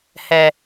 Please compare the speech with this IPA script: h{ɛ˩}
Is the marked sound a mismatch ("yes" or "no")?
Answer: no